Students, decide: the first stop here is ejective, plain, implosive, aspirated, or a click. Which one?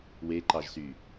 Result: click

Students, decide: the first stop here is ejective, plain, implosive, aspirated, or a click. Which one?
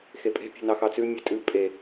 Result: ejective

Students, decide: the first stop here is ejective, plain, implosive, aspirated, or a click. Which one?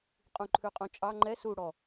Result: ejective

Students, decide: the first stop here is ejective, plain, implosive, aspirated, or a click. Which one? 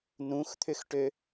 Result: aspirated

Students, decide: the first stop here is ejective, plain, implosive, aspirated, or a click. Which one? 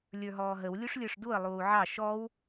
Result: plain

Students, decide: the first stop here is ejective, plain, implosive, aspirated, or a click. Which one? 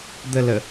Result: plain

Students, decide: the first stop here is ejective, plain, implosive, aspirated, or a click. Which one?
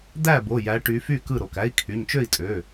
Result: plain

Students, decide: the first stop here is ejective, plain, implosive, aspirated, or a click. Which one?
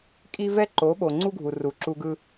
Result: ejective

